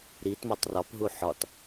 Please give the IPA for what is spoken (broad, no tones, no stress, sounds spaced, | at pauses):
ɾ i t m ɒ tˤ r ɒ p ɦ u ħ ɒ t